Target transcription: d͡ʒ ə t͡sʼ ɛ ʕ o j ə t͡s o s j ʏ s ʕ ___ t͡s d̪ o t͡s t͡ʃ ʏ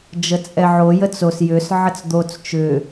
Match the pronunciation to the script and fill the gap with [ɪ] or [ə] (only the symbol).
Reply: ə